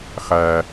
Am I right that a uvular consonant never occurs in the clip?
no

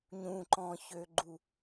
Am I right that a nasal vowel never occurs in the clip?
no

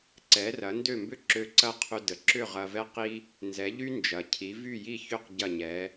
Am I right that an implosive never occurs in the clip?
yes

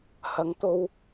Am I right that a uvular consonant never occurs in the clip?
yes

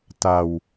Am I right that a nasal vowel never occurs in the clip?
yes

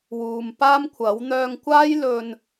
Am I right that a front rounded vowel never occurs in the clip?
no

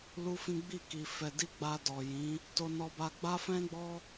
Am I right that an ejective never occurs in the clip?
yes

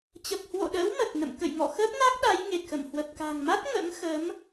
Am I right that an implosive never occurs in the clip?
no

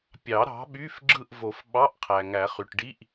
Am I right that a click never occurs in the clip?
no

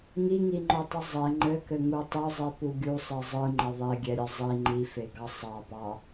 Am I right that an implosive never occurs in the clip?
yes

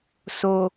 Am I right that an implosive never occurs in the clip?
yes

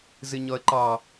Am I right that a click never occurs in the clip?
no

